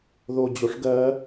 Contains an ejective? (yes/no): no